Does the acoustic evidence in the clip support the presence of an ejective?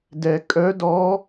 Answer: yes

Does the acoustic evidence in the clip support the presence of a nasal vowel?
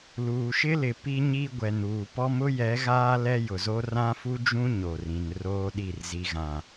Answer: yes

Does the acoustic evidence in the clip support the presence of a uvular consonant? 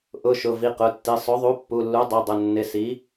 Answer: yes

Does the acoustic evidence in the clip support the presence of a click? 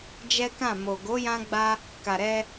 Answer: no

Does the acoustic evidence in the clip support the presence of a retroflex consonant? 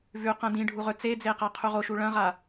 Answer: yes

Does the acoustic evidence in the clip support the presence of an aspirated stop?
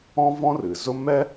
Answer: no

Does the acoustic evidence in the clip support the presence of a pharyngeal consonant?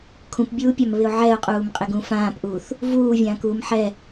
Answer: yes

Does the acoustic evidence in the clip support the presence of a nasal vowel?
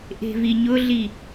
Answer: no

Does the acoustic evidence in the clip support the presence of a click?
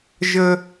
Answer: no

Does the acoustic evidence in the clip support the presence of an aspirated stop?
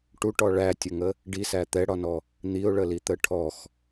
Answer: yes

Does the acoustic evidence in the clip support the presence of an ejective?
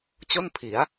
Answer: no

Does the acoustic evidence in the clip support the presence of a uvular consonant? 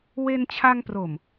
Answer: no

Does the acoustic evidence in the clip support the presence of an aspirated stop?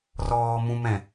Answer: no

